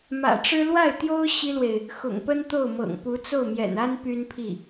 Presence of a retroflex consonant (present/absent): present